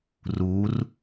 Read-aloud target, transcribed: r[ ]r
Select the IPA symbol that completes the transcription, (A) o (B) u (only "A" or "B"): B